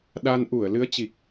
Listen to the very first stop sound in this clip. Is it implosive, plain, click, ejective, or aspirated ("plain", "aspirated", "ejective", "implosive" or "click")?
implosive